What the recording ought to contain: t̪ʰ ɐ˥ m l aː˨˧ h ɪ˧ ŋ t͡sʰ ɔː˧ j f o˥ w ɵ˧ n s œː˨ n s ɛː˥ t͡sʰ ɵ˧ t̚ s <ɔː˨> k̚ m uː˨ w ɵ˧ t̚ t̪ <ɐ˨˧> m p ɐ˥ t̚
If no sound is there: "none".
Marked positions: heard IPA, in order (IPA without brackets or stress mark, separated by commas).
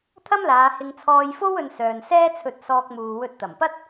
ɔː˧, ɐ˨˩